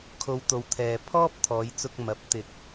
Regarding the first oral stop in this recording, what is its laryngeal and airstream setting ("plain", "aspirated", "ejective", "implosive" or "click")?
aspirated